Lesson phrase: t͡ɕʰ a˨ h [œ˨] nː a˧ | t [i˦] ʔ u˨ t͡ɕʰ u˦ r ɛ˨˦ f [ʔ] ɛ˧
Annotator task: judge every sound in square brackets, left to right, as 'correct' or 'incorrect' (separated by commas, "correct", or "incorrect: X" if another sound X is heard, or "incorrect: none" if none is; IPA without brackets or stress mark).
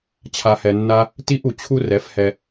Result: incorrect: ɛ˨, correct, incorrect: h